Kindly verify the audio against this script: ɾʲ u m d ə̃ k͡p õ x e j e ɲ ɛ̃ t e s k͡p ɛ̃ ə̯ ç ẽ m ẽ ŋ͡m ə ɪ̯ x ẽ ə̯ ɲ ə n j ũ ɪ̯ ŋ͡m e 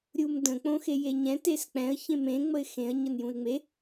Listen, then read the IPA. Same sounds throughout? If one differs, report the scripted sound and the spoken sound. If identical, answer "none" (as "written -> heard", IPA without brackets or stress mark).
none